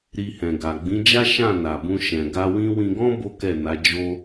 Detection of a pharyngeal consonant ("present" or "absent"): absent